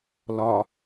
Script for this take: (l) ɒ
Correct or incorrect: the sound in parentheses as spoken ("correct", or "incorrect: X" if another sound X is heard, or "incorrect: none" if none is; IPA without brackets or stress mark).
correct